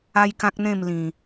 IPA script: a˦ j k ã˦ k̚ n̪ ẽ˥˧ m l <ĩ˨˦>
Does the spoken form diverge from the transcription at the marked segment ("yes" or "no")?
yes